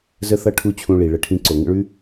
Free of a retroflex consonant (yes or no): no